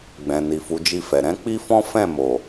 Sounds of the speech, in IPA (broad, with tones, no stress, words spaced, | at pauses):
ɡ͡bɛ̃˨ni˨fu˨˦ d͡ʒi˦˨fɛ˨ ɾɛ̃˨˦k͡pi˦fɔ̃˦ fɛ̃˦˨mo˨